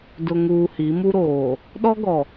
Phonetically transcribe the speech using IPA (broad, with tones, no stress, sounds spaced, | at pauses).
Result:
d ʊ˨ ŋ uː˨ h i˨˦ m u˦ ɾ oː˨ | ɗ ɔ˦ ɡ ɔ˨